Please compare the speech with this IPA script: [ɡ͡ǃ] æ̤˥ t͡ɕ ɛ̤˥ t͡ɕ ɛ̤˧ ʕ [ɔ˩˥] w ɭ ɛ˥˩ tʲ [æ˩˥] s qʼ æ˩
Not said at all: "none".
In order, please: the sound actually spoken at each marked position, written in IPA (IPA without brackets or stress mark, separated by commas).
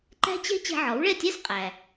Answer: ǃ, ɔ˩˥, æ˥